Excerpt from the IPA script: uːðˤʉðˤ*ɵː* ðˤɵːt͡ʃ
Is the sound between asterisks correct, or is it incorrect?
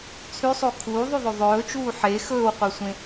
incorrect: ɵ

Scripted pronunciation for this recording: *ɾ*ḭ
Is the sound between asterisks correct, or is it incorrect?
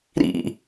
correct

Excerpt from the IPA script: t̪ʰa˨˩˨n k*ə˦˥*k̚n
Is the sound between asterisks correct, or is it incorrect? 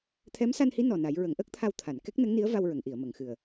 incorrect: ɛ˦˥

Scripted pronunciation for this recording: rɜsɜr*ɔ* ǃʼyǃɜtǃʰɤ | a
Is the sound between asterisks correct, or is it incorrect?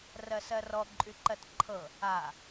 correct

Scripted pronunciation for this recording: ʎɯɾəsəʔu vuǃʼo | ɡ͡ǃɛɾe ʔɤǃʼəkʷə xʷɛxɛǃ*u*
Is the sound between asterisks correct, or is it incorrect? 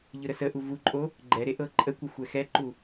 correct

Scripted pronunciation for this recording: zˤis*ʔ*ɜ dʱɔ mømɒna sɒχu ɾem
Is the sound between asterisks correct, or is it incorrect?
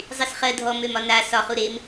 incorrect: χ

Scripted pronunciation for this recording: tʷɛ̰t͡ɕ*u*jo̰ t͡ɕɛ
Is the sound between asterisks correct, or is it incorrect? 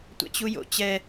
correct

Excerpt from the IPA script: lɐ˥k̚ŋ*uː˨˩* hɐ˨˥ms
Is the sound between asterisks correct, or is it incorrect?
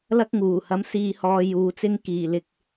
correct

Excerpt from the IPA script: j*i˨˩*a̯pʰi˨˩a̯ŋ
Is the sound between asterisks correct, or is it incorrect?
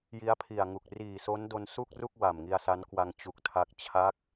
incorrect: i˦˥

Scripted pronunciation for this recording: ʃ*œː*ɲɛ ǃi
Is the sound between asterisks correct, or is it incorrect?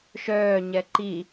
correct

